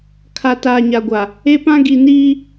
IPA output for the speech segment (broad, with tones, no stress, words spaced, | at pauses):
kʰa˨ taː˨ɲa˨ɡʷa˨ | e˦pã˦ ɡi˨niː˦